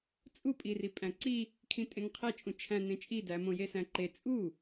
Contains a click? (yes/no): yes